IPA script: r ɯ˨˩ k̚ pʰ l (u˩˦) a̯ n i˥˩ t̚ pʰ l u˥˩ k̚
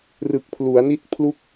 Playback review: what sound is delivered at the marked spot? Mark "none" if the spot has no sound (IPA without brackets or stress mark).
u˩˦